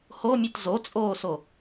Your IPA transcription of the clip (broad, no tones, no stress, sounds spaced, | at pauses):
h o mʲ ɯ t z o t͡sʼ oː s o